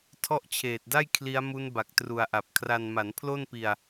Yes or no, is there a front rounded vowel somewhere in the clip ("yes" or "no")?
no